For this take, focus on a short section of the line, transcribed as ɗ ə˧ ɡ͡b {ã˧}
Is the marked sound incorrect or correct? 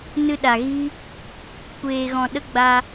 incorrect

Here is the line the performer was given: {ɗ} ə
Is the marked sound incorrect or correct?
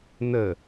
incorrect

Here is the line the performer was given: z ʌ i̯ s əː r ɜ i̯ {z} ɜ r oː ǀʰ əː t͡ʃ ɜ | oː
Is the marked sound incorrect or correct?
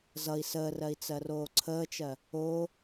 incorrect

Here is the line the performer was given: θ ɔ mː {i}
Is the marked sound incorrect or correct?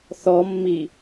correct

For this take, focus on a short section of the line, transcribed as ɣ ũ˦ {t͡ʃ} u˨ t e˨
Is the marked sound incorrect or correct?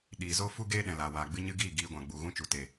correct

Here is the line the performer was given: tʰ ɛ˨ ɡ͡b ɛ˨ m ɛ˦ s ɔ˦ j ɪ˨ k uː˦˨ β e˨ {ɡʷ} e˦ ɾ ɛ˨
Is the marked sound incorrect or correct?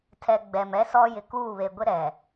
correct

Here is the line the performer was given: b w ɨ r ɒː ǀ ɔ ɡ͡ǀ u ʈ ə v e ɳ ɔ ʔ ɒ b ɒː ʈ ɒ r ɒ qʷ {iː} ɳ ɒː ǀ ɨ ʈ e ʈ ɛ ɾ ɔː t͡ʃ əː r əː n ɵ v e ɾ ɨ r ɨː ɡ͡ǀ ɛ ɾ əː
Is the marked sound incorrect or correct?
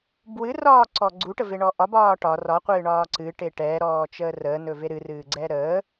incorrect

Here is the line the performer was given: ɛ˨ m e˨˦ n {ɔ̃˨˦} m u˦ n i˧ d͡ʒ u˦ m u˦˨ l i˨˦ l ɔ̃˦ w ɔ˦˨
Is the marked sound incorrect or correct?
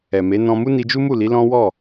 incorrect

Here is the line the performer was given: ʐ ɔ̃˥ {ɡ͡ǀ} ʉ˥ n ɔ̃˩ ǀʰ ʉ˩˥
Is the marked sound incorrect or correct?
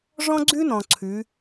correct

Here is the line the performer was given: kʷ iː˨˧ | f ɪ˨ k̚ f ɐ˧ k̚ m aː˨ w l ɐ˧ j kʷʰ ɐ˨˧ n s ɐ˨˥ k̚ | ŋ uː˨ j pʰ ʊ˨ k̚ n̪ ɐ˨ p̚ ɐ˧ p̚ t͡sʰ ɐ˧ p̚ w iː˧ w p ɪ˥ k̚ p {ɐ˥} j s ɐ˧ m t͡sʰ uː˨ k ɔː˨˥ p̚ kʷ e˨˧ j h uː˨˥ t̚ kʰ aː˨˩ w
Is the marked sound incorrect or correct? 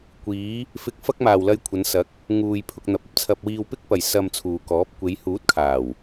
incorrect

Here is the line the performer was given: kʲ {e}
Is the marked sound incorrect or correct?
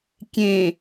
incorrect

